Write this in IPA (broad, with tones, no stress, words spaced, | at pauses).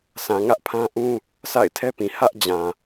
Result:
sã˨ŋä˦ʔpʰã˦ʔũ˦ | sʰa̰˦˨ɪ̯tʰɛ˦pĩ˨ hä˦ʔd͡ʑã˨